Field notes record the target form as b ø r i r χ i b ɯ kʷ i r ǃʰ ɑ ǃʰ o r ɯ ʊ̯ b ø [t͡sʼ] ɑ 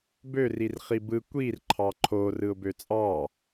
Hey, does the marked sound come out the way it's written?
yes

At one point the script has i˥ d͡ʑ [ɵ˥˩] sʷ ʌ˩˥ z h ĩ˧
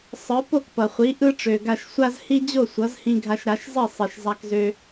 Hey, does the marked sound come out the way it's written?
no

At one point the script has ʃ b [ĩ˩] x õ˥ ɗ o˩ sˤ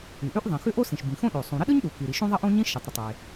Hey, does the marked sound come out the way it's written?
yes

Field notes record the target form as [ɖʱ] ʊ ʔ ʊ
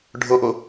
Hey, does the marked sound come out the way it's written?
yes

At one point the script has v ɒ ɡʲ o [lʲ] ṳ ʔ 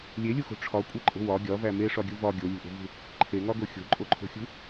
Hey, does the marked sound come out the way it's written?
yes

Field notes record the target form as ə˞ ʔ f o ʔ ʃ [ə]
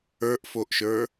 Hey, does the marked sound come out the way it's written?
no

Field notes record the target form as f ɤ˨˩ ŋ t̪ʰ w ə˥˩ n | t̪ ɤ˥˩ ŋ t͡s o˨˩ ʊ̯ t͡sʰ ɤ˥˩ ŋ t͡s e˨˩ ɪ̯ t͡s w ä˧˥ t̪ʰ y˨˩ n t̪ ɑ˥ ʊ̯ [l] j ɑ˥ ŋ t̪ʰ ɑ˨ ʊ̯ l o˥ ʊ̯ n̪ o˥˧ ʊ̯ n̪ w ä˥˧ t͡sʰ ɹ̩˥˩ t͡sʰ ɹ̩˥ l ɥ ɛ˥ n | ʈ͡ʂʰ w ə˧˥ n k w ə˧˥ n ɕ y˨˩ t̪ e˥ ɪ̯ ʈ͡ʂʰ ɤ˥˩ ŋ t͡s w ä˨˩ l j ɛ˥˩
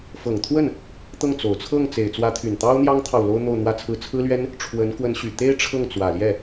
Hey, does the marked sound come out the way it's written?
no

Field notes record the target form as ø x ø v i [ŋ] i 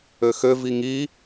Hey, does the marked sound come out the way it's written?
yes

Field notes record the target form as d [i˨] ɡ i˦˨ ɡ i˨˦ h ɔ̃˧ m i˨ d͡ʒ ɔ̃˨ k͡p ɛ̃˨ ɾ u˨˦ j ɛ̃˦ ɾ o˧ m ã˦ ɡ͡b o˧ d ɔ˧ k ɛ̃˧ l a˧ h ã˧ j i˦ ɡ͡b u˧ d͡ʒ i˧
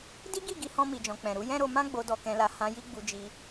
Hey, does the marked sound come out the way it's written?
no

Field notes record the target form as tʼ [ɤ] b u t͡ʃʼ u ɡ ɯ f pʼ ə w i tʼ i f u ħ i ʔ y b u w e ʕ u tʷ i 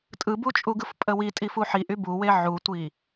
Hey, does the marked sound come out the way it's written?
no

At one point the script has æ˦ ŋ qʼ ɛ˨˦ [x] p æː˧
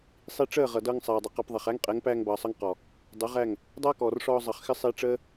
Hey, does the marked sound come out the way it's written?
no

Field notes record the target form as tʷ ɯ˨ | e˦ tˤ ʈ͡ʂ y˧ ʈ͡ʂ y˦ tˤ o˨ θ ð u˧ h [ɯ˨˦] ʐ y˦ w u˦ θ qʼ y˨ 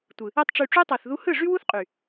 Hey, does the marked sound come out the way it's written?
no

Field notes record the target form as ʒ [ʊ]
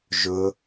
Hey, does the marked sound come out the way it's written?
yes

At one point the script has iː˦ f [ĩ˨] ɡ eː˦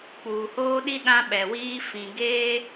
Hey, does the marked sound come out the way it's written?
yes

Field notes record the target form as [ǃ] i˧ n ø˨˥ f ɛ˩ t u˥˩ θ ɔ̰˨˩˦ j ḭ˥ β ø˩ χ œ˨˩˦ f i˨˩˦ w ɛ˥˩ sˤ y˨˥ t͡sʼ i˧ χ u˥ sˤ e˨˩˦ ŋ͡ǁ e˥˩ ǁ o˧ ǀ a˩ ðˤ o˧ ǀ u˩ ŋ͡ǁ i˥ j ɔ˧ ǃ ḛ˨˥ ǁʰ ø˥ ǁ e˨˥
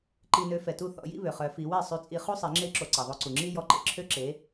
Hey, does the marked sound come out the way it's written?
yes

